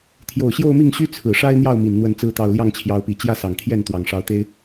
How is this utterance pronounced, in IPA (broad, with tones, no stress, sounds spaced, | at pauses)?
t̪ʰ j o˨˩ ʊ̯ ɕ j o˥˧ ʊ̯ m i˥˩ ŋ ɕ y˥ t͡sʰ ɹ̩˨˩ ʂ a˥ ɪ̯ n̪ j ɑ˥˩ ʊ̯ m i˨˩ n n̪ w ə˥˩ n t͡s ɹ̩˥ t̪ ɑ˥˧ ʊ̯ l j ɑ˥˩ ŋ t͡ɕʰ j ɑ˧˥ ʊ̯ p i˨˩ t͡ɕ j ä˥˩ s ɑ˨˩ ŋ t̪ʰ j ɛ˥˩ n t̪ w ɑ˨˩ ŋ ʂ ɑ˧˥ ʊ̯ t̪ e˥ ɪ̯